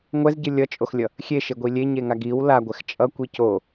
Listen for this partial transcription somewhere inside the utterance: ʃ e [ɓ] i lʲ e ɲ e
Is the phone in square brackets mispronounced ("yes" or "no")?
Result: yes